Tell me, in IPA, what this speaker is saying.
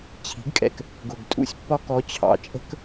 t͡ɕʰ i̤˩˥ ɡ kʼ ɛ̰˨˩ k | ɡ ʊ˨˩ ɡ tʼ ṵ˧ sʲ pː ɒ˥ k ɔ˧˥ t͡ɕʰ ɑ̰˨˩ t͡ʃʼ ə̤˥ k

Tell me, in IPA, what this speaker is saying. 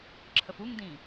ǁʰ ə f u ŋ d ĩ

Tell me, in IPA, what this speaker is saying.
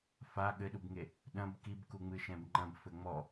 f a ɠ ɘ ɗ u b ŋ e | ɗ ɐ̃ b k i b k u ŋ͡m ɨ ʃ ɛ̃ b ŋ͡ǃ ɐ̃ b f ɘ ŋ͡m ɔ

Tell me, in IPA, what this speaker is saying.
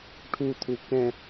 ʈʰ u t̪ʰ u k ɛ̃

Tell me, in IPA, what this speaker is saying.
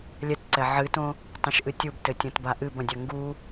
lʲ ɛ t ǀ ɛ ʕ ɨ t õ | tˤ õ ʃ ʔ ɨ tʲ u b t ɘ tʲ õ t b a ʔ ɨ b ɐ̃ dʲ ɐ ŋ ɡ u

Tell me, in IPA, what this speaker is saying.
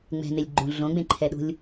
ŋ͡m ɛ̤ n e lʲ ɡ͡ǃ ũ ɮ õ ɡ͡b ẽ ǃʰ ɛ ɗ ṳ lʲ

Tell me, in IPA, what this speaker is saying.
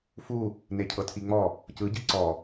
f u | n e cʰ ɤ tʰ i ŋ͡m ɔ | c ɯ ɟ i ǀ ɔ

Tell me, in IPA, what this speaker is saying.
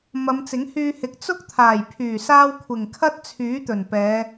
m ɐ˨˧ m t͡s ɪ˨˥ ŋ h yː˧ h ɪ˨˥ k̚ t͡s ʊ˥ k̚ t̪ʰ aː˨˩ j pʰ yː˨˩ s aː˧ w kʷʰ ɪ˨˩ ŋ kʰ ɐ˥ t̚ t͡sʰ yː˨˥ t̪ ɵ˨˩ n p ɛː˨˧

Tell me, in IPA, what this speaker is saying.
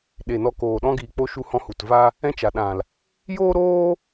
ɗ e˨ n ɔ˧ k oː˨ ɗ ɔ̃˧ ɡ iː˨ k͡p o˧ ʃ u˧ h ɔ̃˧ h u˨ t v a˦ | ɛ̃˦ t͡ʃ a˨ ɗ ã˨ l | j oː˦ ɾ oː˦

